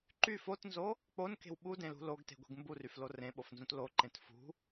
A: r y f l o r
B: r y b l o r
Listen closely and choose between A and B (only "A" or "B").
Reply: A